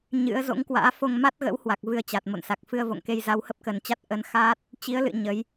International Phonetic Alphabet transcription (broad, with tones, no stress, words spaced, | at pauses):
ɲɨ̰˧˥ə̯ zo̰˧˥ŋkwa̰ː˧˥ fo˧ŋma˦˥t̚ɣə̰˧˥whwa˨˩k̚ vɨ˧ə̯t͡ɕa˨˩t̚mo̰˧˨nsa˨˩k̚ fɨ˧ə̯vo̰˧˨ŋke˧j za˨˦whə˦˥p̚kə˨˩nt͡ɕa˦˥t̚ ʔə˨˦n xaː˦˥t̚ | t͡ɕi˨˦ə̯lɨ̰˧˨ ɲə˨˦j